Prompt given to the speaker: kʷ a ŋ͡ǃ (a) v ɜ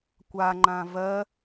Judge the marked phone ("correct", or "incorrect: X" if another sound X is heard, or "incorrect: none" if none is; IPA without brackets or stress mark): incorrect: ã